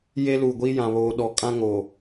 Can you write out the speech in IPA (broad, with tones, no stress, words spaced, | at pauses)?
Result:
je˦luː˨ ɡʷi˦jã˨ βoː˨ɗɔ˨ kʼã˦ŋoː˨